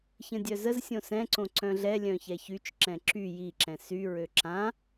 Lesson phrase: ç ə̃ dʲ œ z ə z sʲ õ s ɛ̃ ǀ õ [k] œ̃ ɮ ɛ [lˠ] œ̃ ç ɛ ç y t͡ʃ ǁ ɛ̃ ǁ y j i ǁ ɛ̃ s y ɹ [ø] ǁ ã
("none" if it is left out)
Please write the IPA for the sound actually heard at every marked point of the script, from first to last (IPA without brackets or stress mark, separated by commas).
ǀ, lʲ, ø